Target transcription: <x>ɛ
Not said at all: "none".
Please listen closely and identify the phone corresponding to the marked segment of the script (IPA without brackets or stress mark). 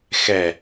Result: x